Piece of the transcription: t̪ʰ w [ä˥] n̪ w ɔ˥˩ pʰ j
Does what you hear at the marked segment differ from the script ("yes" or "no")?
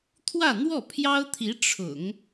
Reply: yes